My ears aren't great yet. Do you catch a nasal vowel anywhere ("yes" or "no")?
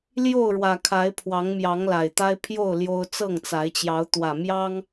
no